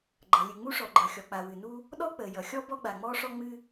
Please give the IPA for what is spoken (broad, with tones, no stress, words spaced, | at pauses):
ɡ͡ǃʌ˩lʲɨ˩ŋ͡mu˥ ʂɔ˩ɡ͡ǃʌ˩xʲɔ˩k͡pa˩ wɨ˩nu˥ | ɗɔ˥k͡pəː˩ jʌ˩xʲɔ˥ bɔ˥ɡ͡ba˩ŋ͡mɔː˥ʂɔ˥ ŋ͡mɨ˥